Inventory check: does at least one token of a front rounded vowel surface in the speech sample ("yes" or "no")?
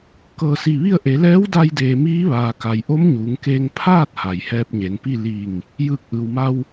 no